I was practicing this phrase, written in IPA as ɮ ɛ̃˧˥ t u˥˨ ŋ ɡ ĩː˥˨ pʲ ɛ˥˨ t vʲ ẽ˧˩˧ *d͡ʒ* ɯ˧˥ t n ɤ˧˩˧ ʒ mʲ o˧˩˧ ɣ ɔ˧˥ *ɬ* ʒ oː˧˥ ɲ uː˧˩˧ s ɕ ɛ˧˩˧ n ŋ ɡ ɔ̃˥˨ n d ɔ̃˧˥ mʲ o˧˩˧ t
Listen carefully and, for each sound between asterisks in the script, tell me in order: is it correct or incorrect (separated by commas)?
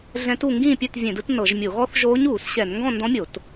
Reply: incorrect, incorrect